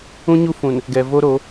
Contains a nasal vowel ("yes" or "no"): yes